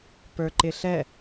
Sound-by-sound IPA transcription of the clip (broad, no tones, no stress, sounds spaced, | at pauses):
p ə˞ ǃ ɪ ɬ ɛ